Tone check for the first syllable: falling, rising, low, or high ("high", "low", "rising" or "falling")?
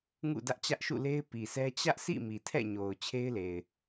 falling